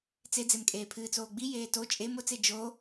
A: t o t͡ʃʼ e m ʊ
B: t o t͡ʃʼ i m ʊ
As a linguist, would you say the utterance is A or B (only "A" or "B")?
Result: A